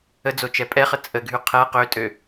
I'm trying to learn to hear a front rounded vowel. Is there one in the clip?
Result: yes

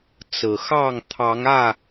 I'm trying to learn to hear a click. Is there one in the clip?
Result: no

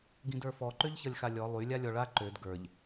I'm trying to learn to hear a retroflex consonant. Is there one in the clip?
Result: yes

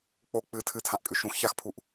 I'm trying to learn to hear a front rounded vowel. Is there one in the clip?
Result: no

